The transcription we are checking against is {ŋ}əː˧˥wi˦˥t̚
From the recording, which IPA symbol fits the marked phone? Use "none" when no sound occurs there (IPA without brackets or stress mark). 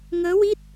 ŋ